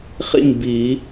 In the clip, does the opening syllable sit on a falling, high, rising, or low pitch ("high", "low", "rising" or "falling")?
falling